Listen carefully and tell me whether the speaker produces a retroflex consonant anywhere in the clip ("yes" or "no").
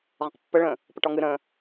yes